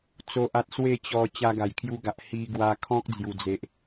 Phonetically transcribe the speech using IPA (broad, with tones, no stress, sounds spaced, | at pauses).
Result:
t͡s o˦ ʔ a˦ t̚ s w e˥˧ t͡ɕ ɔ˧ t͡ɕ a˧ ɡ a˨˩ j kʰ j u˧ ɡ a˨ ʔ h i˧ ɡ w a˧ kʰ ɔ̃˦ k̚ d͡z j u˨˩ d͡z e˨ ʔ